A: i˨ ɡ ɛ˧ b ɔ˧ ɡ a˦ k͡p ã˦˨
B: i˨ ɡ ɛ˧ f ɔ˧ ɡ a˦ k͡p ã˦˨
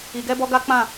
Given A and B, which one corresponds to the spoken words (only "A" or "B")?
A